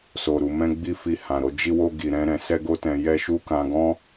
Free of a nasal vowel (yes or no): no